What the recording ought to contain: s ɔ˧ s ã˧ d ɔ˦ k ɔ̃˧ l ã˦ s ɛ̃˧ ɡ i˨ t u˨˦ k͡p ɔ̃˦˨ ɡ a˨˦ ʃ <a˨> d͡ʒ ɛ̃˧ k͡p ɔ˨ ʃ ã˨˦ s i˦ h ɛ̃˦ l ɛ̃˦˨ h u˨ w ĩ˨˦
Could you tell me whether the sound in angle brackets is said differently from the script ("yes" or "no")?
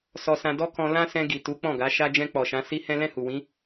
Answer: yes